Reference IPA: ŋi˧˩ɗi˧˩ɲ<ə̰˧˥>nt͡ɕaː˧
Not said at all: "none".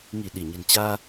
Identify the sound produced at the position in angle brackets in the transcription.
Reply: ə̤˨˩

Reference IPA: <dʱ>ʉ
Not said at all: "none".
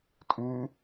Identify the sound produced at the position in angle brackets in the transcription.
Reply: tʼ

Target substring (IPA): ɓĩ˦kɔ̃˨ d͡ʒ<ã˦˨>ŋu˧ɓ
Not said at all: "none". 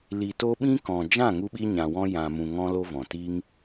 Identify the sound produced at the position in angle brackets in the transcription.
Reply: ã˦˨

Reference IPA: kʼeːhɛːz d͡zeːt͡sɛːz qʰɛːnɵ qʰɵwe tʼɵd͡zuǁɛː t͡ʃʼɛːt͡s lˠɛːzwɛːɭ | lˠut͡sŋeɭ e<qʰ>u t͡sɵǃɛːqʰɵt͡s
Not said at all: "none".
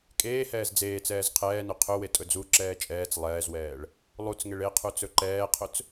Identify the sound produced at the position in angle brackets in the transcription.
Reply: qʰ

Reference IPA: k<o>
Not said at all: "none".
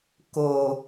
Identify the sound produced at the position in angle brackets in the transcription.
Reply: o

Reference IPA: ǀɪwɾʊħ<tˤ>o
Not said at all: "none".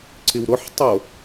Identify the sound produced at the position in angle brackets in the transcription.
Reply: tˤ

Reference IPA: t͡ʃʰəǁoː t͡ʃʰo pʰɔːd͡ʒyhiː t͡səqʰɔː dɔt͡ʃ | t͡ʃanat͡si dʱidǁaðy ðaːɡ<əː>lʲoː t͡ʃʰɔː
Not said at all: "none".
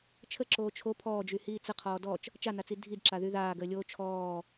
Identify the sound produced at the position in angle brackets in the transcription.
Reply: əː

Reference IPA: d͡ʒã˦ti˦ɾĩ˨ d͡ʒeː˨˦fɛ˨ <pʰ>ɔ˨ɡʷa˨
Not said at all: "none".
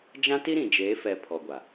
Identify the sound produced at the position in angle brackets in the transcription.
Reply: pʰ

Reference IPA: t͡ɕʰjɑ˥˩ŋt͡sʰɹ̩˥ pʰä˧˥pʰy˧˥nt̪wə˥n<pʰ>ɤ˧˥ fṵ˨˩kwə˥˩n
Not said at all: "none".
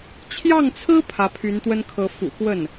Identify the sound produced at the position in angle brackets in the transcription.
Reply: kʰ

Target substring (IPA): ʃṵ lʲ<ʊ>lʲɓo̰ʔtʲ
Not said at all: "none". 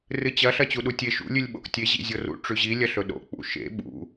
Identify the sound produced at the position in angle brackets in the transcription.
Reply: ʉ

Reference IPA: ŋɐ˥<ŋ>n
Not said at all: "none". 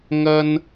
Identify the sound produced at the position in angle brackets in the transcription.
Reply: none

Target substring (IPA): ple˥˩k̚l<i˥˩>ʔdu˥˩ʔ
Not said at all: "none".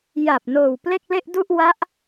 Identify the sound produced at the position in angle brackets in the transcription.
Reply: e˥˩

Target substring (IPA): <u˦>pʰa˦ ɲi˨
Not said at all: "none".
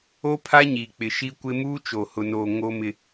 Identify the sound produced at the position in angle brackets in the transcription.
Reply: o˦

